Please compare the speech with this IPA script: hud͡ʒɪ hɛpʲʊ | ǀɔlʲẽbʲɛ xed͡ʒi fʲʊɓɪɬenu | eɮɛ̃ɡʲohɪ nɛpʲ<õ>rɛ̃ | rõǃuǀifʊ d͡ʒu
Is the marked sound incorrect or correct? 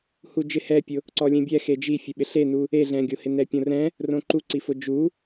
correct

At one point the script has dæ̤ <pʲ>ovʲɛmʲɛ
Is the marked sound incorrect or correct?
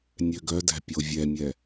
correct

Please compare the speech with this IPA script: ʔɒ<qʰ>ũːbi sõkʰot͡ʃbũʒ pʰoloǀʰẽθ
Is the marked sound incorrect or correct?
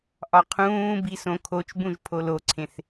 correct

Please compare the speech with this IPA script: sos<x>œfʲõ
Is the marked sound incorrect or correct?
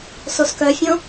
incorrect: k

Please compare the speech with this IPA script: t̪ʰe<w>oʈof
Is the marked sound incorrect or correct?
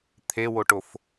correct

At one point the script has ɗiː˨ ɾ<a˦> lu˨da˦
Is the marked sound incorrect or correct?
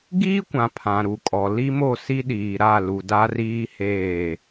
incorrect: a˦˨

